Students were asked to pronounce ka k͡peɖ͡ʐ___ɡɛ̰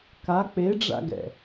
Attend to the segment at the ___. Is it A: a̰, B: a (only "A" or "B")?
A